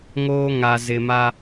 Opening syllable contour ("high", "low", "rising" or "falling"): high